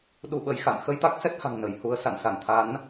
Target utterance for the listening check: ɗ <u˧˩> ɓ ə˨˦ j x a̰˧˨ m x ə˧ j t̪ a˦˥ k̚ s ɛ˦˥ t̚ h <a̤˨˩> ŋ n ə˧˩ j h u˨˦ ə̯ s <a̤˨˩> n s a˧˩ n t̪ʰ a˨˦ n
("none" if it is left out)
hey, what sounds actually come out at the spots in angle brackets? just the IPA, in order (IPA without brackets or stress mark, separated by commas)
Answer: u˧, a̤˨˩, a̰˧˨